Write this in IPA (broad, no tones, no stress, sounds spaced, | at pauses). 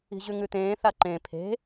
i̤ ʑ ʉ ŋ ʉ t̪ ẽː θ a ǃ ẽ pʰ e̤